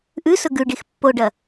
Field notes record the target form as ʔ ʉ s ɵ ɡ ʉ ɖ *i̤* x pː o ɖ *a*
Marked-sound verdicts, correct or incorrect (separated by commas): incorrect, incorrect